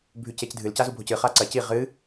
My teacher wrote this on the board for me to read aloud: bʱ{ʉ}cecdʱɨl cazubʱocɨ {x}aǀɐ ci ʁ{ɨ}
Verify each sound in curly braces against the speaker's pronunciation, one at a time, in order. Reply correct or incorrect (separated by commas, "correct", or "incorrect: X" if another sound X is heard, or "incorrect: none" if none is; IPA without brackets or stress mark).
correct, incorrect: χ, correct